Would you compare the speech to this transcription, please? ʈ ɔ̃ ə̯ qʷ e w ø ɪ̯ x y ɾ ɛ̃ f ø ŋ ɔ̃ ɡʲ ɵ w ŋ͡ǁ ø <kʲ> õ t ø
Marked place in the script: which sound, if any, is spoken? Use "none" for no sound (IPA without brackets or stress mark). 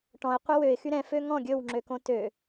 k